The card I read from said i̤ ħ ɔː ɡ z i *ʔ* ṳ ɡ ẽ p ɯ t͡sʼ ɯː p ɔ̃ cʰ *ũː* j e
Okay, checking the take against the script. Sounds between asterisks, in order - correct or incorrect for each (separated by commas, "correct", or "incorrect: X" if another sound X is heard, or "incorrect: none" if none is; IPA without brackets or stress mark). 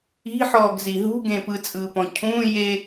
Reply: incorrect: ɦ, correct